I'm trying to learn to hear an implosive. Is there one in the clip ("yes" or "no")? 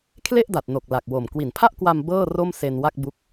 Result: no